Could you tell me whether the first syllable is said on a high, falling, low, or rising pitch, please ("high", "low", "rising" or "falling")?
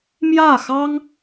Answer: falling